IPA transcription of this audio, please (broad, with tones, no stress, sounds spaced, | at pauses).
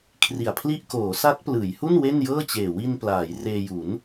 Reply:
kʰ r i˨˩ a̯ pʰ l i˥˩ ʔ k oː˩˦ s a˦˥ t̚ p l ɯː˩˦ j h u˥˩ n w e˥˩ n j ɤː˥˩ t͡ɕ eː˨˩ w i˧ n p l aː˩˦ j r eː˧ j u˩˦ n